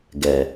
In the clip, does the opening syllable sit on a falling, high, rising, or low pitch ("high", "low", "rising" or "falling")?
low